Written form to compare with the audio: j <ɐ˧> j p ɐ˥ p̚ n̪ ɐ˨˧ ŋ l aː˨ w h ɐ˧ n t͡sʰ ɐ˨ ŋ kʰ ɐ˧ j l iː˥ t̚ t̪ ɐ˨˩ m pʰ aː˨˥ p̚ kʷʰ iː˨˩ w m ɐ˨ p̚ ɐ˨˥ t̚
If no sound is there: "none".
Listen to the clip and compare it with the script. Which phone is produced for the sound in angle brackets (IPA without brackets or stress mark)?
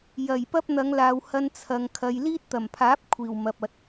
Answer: ɐ˨˩